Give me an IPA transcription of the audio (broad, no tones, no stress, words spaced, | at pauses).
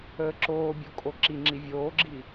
əːǁoːbʲo kʼoǁiŋ͡ǁi vʲoːɡ͡ǁi